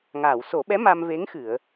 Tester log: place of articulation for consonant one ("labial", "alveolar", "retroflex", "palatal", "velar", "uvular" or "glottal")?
velar